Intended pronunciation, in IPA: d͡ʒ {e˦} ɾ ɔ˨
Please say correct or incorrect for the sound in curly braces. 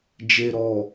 incorrect